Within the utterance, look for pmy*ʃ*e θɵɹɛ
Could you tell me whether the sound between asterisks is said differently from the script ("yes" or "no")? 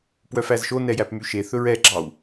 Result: no